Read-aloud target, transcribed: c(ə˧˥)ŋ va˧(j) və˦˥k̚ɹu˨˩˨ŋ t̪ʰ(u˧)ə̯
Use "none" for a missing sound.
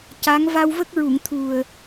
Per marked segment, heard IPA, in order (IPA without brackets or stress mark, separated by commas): a˧˥, w, u˨˩